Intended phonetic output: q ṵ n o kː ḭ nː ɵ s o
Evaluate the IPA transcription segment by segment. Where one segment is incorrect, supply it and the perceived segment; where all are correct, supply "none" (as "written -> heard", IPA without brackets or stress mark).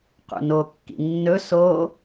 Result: none